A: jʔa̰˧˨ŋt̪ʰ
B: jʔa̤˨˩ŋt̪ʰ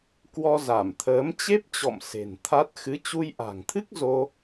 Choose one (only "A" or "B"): B